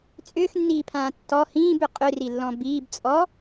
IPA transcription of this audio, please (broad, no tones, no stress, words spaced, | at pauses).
t͡sʼʏːxnːiːpʰãː tːɔ hĩːbʏ qʼʏrilːɔ̃ biːb t͡sʼɔ